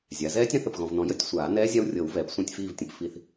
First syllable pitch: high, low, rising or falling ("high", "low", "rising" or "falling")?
rising